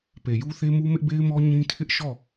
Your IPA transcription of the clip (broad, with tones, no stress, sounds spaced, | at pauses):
p e˨ j u˦ θ e˦ m u˦ m ɪ˦ ʔ b e˦ ɪ̯ m ɔ˦ ɲ ĩ˦ tʰ ɪ˦ ʔ ʃ ɔ˦˨